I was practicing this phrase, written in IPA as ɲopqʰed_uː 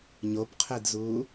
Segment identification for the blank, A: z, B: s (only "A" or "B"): A